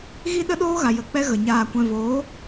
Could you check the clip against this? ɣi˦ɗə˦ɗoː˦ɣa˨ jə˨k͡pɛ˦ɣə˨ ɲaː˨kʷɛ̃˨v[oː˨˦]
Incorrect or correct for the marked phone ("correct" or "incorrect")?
correct